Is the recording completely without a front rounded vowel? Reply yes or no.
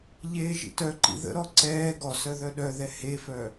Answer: no